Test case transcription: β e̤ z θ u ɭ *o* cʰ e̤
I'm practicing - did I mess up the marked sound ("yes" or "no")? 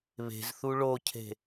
no